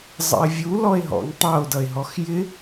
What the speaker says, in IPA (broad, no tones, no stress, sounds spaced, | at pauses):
zˤ ə̰ e̯ vʲ u l ɔ e̯ ɦ ɔ̰ ŋ tˤ ʌ o̯ d ʌ e̯ ɦ ɔ x j ɪ